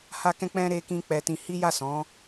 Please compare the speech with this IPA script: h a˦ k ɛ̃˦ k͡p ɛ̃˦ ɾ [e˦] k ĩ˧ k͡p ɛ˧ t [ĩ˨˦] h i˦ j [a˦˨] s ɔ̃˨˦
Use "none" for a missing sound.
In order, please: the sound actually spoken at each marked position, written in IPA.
e˧, ĩ˧, a˦˨

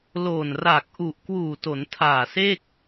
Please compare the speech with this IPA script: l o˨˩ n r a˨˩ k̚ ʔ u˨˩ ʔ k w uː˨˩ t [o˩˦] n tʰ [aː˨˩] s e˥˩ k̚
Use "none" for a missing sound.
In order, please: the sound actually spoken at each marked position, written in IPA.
o˩˦, aː˨˩

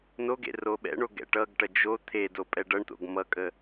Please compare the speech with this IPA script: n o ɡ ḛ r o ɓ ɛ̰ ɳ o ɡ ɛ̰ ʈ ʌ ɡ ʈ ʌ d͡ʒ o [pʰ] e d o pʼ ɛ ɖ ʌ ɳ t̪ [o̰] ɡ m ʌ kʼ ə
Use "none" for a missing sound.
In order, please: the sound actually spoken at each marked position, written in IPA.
t̪ʰ, o̰

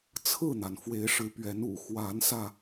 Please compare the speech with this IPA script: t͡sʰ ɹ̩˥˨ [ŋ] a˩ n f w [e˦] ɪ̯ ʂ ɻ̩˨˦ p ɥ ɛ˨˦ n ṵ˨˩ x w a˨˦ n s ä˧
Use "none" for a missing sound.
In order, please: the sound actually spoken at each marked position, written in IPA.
n̪, e˨˦

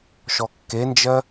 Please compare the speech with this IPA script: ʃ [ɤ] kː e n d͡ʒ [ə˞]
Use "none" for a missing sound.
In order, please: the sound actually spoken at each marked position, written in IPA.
ɔ, ɜ

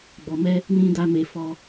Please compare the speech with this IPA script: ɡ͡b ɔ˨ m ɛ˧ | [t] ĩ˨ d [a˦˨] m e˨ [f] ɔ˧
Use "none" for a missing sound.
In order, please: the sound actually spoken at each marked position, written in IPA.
n, a˨, f

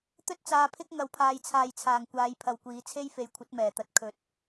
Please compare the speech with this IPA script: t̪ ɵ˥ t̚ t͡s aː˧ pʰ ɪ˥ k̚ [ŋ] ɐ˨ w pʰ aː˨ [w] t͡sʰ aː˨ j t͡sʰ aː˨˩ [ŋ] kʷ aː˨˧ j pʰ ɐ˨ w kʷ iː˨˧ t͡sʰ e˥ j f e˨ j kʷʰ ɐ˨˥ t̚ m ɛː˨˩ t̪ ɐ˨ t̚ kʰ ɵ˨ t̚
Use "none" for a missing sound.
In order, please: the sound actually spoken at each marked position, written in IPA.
ŋ, j, ŋ

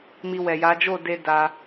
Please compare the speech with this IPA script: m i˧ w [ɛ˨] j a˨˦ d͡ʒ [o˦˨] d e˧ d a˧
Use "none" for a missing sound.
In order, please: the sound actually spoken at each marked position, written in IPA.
ɛ˨, o˦˨

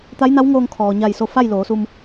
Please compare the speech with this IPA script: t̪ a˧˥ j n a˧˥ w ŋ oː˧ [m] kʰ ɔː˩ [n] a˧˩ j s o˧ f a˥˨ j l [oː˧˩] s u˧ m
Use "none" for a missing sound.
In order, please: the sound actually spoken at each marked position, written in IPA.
ŋ, ɲ, oː˩˧

